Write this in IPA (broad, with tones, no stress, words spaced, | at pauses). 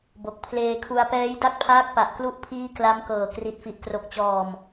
bo˨˩k̚pʰleː˧kʰu˧a̯ pɛː˦˥jda˥˩k̚pʰaː˦˥k̚pa˨˩ʔ klu˥˩ʔpʰiː˥˩ kla˦˥mkɤː˨˩ kri˨˩t̚fi˨˩ʔkro˨˩k̚t͡ɕɔː˨˩m